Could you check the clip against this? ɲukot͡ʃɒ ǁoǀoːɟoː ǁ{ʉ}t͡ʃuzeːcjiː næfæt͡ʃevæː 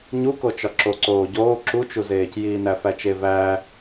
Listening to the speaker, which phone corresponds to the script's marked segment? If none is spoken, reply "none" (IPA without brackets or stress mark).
u